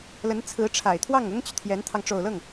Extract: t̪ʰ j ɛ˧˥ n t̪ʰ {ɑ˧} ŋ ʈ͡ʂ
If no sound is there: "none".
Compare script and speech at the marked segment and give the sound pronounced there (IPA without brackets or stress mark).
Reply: ɑ˧